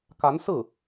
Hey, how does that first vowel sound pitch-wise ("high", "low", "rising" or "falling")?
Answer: rising